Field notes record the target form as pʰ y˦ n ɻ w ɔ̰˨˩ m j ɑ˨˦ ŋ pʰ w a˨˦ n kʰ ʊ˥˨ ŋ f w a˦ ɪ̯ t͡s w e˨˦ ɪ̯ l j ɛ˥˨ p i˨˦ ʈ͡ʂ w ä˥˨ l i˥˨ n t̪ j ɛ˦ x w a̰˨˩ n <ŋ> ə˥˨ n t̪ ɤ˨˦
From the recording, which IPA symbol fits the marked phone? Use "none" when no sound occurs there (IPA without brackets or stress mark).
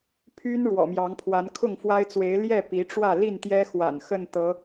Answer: x